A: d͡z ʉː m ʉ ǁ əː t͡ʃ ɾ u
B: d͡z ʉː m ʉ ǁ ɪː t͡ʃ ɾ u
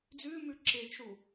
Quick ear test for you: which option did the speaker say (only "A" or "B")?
B